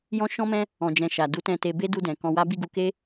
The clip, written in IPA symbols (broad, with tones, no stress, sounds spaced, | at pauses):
j ɔ̃˦ ʃ ɔ̃˦ m ɛ̃˦ | ɔ̃˧ d͡ʒ ɛ̃˧ ʃ a˨ d u˨˦ t ɛ̃˧ t e˧ b e˦ d u˧ d ɛ̃˨ k ɔ̃˧ w a˦ b i˦˨ ɡ u˧ k e˦